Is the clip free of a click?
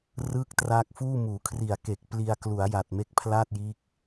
yes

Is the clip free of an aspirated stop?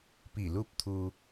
no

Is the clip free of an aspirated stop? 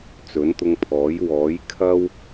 no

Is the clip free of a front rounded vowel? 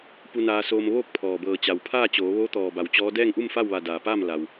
yes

